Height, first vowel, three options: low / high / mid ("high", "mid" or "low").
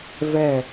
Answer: mid